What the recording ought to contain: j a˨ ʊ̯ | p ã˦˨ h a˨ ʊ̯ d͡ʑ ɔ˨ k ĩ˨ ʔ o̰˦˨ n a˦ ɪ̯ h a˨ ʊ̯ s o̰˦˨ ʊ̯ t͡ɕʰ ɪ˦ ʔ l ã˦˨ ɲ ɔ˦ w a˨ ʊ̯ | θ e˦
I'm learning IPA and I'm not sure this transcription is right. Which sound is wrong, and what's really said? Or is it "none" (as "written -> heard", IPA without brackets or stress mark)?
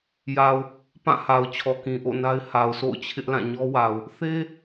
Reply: d͡ʑ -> t͡ɕʰ